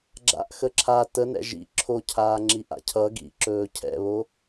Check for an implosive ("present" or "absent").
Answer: absent